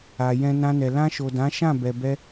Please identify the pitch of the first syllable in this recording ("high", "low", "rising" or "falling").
low